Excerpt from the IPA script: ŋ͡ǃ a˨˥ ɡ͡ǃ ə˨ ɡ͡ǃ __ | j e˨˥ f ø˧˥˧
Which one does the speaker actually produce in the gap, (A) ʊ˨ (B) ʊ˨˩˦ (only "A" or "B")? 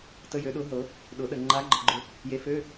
A